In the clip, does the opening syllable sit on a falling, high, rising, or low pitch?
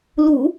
low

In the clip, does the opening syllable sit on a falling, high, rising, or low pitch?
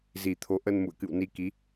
low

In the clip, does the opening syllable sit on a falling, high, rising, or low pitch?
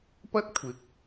high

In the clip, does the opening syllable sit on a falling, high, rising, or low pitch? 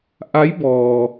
rising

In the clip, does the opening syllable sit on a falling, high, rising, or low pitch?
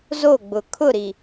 falling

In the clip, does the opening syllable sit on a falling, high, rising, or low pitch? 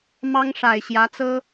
high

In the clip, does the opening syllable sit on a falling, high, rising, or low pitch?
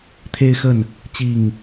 high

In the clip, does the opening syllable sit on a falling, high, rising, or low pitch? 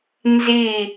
falling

